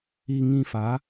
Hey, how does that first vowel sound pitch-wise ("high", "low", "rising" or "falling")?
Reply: low